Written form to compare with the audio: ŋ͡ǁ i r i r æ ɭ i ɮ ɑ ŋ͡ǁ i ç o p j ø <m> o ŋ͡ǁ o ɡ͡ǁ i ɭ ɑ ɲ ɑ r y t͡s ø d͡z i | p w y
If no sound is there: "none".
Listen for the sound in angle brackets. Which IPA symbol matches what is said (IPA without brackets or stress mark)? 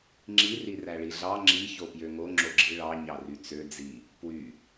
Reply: ŋ